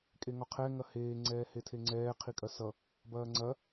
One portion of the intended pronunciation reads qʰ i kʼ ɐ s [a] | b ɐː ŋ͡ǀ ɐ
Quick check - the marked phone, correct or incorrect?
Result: incorrect